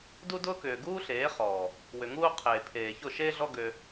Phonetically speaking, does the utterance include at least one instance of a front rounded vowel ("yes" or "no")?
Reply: yes